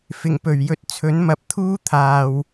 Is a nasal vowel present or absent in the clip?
absent